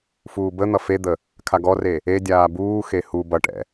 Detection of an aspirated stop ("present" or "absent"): present